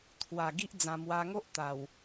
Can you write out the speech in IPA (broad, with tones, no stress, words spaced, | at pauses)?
t̪ʰwa˨˩ɡi˦ʔ d͡zã˧mwa˦ ŋo˦ʔ t̪a˨˩w